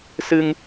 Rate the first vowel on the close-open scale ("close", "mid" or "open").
close